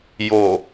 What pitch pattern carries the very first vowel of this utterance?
low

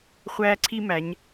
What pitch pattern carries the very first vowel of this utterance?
high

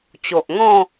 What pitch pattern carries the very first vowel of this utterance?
low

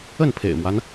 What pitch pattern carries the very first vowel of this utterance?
falling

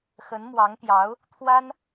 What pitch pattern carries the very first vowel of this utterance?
rising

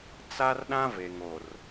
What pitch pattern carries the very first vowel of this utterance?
high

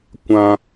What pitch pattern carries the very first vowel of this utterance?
low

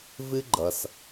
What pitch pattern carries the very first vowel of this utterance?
high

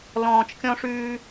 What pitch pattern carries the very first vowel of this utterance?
low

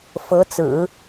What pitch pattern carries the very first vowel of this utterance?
rising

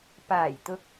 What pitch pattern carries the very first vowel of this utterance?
low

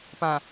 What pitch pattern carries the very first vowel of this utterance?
low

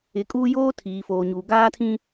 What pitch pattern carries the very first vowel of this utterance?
rising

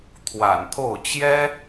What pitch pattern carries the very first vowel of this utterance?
low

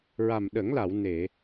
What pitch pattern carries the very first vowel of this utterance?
low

